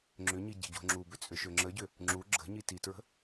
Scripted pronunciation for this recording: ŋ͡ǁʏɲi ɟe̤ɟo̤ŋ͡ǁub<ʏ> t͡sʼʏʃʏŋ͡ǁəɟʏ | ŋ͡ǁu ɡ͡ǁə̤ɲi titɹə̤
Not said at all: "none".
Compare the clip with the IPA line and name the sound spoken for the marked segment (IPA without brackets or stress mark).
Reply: ʏ